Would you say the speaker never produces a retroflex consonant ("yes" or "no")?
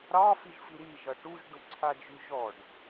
no